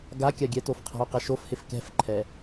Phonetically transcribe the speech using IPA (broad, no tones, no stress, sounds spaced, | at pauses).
ɡ a kʲ a ɡʲ ɛ t o f qʰ a̤ o̯ q ɛ ʃ o f h ɪ f k ɛ̤ f ǃʰ ɛ